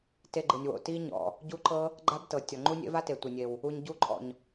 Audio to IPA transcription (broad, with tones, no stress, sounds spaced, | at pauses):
t e˧ ɡ͡ǃ ɯ˨ nʲ w o̰˨ t i˦ ɲ ɔ̰˨ | ɟ u˦ ǃ ɤ˦ | ɡ͡ǃ a˦ b t ɤ˨ tʲ ɔ˨ ŋ͡ǃ u˦ nʲ ḛ˦ v a˦ t e˨ tʷ e˨ nʲ e˨ w | u˧ ɲ ɟ u˦˨ ǃʼ ɔ̰˨ ɲ